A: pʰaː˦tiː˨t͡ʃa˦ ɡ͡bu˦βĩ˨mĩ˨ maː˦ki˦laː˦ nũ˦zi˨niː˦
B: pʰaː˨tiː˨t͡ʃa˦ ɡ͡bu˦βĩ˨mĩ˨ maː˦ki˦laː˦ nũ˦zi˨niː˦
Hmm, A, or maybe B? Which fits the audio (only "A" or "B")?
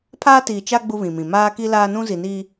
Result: A